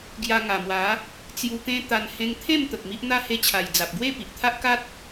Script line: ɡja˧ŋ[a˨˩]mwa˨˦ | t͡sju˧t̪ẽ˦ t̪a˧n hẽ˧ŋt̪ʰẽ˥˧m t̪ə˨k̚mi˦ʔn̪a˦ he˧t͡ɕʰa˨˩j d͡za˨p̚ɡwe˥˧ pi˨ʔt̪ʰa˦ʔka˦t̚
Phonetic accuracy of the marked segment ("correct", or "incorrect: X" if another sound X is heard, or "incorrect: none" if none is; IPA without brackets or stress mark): correct